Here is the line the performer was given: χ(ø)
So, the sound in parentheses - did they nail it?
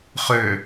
yes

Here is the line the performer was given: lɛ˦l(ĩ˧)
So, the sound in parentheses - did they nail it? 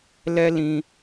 yes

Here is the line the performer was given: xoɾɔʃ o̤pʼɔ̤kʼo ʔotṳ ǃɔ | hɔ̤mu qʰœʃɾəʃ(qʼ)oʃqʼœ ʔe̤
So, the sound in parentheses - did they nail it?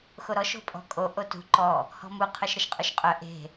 yes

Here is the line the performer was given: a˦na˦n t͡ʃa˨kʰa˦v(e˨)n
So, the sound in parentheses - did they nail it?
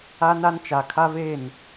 no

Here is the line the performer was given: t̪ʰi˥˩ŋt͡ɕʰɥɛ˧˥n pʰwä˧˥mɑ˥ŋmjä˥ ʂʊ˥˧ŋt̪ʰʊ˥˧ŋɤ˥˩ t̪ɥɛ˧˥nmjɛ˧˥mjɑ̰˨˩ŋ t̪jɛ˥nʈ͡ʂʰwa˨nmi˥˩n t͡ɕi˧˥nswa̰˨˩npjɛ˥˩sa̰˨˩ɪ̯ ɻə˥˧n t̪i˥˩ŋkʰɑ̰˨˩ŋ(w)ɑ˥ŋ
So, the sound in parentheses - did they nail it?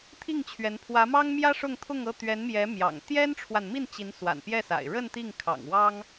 yes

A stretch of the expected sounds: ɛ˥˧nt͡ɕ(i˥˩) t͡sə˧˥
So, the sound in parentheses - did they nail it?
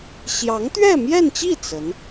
yes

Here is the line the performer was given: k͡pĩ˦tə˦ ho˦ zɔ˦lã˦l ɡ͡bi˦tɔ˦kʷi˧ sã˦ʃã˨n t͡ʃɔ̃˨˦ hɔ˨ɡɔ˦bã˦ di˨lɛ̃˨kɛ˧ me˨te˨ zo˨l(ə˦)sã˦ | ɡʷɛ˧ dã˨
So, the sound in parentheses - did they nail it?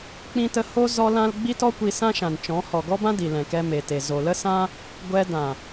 yes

